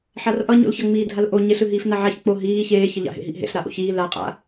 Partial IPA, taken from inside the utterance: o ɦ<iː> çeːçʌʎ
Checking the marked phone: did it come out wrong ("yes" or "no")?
no